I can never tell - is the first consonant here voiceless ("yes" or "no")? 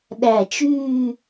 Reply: no